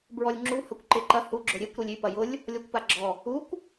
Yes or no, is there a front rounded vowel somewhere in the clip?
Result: yes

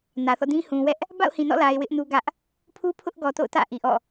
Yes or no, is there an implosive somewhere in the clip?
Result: no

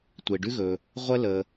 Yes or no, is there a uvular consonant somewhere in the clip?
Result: yes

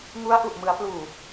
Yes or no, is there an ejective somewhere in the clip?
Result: no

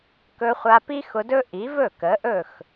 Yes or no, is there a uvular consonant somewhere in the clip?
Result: yes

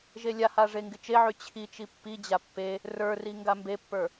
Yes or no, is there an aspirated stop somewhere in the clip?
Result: yes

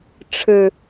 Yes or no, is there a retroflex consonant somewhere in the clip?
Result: yes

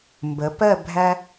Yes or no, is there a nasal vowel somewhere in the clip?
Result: no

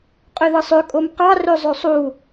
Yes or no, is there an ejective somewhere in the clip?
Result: yes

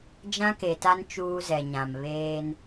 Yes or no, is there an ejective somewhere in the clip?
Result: no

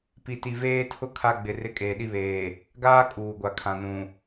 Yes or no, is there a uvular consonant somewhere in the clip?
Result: no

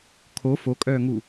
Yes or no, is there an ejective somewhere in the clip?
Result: yes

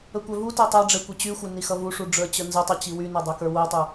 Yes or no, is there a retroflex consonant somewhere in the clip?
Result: yes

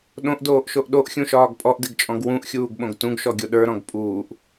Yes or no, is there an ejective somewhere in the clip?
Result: yes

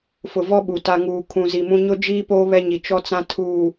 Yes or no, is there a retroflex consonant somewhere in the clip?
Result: no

